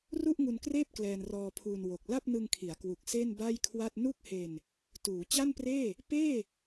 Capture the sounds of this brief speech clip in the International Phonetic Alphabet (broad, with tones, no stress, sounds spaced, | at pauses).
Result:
r u˥˩ ʔ ŋ u˧ n k r eː˥˩ p̚ k l ɛː˧ n r ɔː˧ pʰ uː˧ n w o˨˩ k̚ l a˥˩ p̚ n ɯ˧ ŋ kʰ i˩˦ a̯ k w u˨˩ k̚ s e˥˩ n b a˥˩ j kʰ w a˥˩ t̚ n u˥˩ k̚ h e˧ n | t uː˩˦ t͡ɕ a˥˩ n p r eː˥˩ | p eː˥˩